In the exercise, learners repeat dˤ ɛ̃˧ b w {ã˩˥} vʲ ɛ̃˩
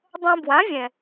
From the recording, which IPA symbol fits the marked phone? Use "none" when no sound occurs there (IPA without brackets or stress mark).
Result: ã˩˥